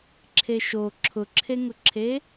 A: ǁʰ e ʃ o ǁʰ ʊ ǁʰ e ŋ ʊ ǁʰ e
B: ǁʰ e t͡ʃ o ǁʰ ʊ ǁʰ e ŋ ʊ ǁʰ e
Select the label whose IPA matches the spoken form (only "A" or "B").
A